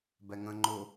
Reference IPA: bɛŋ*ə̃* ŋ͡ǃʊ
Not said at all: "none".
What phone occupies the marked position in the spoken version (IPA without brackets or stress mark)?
ə̃